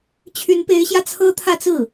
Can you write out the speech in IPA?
t͡ɕʰ y˧˥ n p e˧˥ ɪ̯ ɕ j ä˧ t͡sʰ ɤ˥ t̪ʰ ä˥˧ t͡s ɹ̩˥˩

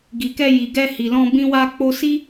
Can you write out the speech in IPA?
ɡ i˨ k ɛ˧ j i˨ ɡ ɛ˧ h i˨ l ɔ̃˧ b ĩ˦ w a˦ k͡p o˦ s i˦

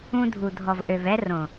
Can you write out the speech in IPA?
ũ˧ dʱ u˨ dʱ ɔ˨ v ʔ ø˨ v ɛ˧ r õ˨

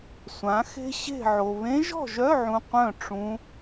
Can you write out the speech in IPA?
sʷ ã˩˥ x e̤˥ ɕ e̤˥˨ ʕ o˨ β ẽ˧˥ ʒ ɔ̤˥˨ ʒ œ˧˥˧ ʕ ũ˨ qʷ œ̃˥˨ ʈ͡ʂ ũ˧˥

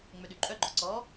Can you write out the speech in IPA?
ŋ͡m ø ɗ y ǃʼ œ ɡ͡ǃ ɔ ǀ ɔ

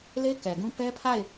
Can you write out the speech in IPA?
l e˦ k ɛ˨ ɡ ũ˦ p ɛ˦ pʰ a˦˨ ɪ̯

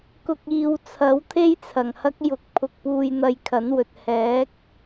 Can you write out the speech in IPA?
k ʊ˨ k̚ iː˨ w t͡sʰ ɐ˨˥ w t̪ʰ e˥ j t͡sʰ ɐ˨˩ ŋ h ɐ˥ k̚ j ʊ˨ k̚ pʰ ʊ˧ k̚ p uː˧ j n̪ ɐ˧ j kʰ ɐ˨˥ n w ɵ˨ t̚ h ɛː˨˥ k̚

